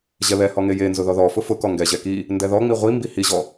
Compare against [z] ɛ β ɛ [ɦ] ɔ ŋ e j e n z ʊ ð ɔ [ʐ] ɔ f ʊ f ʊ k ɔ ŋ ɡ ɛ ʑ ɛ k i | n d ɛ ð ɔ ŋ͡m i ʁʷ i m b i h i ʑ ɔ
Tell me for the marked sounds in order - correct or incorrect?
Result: incorrect: ʑ, incorrect: h, incorrect: ð

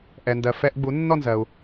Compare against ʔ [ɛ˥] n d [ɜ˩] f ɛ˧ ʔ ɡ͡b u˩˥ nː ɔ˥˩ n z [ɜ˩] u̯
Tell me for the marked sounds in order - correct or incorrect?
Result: incorrect: ɛ˩, correct, correct

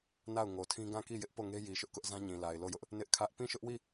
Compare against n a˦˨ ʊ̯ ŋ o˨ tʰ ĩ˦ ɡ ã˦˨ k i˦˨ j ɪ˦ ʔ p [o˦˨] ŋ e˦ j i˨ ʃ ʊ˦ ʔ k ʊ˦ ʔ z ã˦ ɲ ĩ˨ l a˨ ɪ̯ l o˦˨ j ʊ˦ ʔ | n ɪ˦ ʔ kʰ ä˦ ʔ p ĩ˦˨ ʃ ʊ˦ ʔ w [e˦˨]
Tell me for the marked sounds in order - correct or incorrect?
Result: correct, incorrect: i˦˨

